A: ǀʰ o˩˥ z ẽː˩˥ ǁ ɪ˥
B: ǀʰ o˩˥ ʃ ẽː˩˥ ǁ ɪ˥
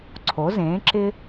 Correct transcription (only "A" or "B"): A